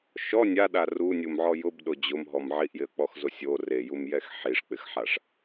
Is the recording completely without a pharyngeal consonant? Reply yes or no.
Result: no